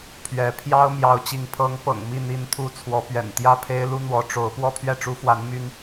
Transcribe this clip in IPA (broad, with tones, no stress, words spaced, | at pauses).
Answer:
pʰɥɛ˧˥ pʰjɑ˥ʊ̯ mjɑ˧˥ʊ̯t͡ɕi˧˥ŋ pʰɤ˧˥ŋpɤ̰˨˩ŋ mi˥˩n̪i˧˥nt̪ʰu˧˥ t͡sʰwɔ˧˥pɥɛ̰˨˩n t̪jä˥˩pʰe˥ɪ̯lu˥ n̪wɔ˧˥ ʈ͡ʂo˧˥ʊ̯ pwɔ˥pʰɥɛ˥˩ʈ͡ʂu˥fwa˧˥n my˥n